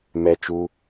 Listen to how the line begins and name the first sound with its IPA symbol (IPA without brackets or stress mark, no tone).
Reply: m